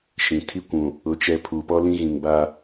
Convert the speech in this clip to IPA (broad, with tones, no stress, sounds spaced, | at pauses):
ʃ ĩ˨ tʰ i˦ kʷ ũ˨ | ʊ˨ t͡ʃ ɛ˨ pʰ u˨ p ɔ˦ l ĩ˦ ɣ ĩ˨ ŋ b a˦